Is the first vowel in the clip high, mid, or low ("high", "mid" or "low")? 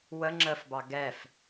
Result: mid